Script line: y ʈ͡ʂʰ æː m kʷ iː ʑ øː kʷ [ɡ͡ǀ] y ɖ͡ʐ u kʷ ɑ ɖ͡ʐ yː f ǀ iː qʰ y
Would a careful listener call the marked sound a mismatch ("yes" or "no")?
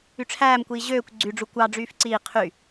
no